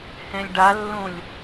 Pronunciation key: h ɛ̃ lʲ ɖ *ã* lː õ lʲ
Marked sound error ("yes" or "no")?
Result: yes